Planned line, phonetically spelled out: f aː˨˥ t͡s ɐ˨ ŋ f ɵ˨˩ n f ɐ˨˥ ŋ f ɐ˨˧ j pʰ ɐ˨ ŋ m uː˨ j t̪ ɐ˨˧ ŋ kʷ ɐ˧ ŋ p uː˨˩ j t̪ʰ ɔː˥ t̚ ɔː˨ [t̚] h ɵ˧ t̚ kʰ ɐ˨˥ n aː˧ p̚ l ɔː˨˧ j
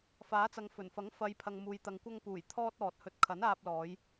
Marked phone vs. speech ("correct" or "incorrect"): correct